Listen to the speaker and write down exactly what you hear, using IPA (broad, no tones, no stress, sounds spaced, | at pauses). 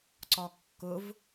ǀ ɒ kː ʊ v